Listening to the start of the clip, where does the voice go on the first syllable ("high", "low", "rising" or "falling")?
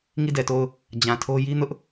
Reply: falling